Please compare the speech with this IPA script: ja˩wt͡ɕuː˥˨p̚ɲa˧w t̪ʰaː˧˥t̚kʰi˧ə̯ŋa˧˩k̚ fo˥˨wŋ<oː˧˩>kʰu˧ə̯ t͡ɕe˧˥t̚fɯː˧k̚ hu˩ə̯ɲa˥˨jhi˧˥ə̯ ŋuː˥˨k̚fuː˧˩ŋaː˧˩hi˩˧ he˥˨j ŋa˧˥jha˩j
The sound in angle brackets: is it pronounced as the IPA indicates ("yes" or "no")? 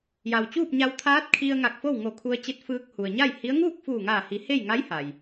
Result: no